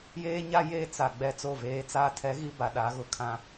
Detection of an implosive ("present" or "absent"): present